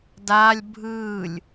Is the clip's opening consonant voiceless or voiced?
voiced